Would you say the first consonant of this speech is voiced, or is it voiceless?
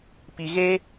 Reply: voiceless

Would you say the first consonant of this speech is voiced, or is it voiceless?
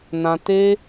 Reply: voiced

